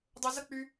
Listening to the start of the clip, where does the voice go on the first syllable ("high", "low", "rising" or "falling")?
low